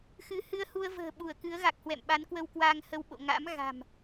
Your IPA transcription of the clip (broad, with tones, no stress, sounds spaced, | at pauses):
x ɨ˨˦ h ɨ˧ ə̯ h u˧ ə̯ v ə̤ː˨˩ ɓ u˧˩ ə̯ k ɨ˨˦ ə̯ ɣ a˨˩ k̚ h w ɛ̰˧˨ m ɓ a˨˦ n k w ə˧ w k w aː˧ ŋ h ə˧ w ɓ o̰˧˨ ŋ a̰˧˥ m ɣ a̤˨˩ m